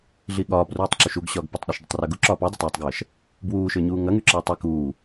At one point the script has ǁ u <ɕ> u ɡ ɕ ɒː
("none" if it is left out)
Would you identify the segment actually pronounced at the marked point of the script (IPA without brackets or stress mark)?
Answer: ʃ